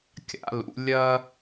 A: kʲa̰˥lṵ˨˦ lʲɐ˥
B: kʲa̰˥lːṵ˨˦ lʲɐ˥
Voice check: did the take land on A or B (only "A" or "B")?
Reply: A